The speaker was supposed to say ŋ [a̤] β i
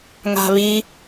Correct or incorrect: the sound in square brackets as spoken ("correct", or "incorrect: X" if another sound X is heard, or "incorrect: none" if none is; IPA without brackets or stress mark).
correct